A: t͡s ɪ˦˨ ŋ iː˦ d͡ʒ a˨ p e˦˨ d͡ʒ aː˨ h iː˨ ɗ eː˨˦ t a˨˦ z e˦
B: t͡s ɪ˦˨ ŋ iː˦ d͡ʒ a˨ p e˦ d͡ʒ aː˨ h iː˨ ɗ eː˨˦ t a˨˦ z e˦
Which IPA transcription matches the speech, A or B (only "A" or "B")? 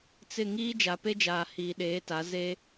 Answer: B